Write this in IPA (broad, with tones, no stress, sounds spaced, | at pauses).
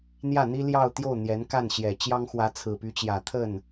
n̪ j ä˥˩ n̪ i˥ l j ɑ˥˧ ʊ̯ t̪ j o˥˩ ʊ̯ n̪ j ɛ˧˥ n k a˥˩ n ɕ j ɛ˨˩ t͡ɕ j ɑ˥ ŋ x w ä˧˥ t͡sʰ ɹ̩˨˩ p y˧˥ t͡ɕ j ä˨˩ t̪ʰ ə˥˩ n